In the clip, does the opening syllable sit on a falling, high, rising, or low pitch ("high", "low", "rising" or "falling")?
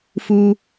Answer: low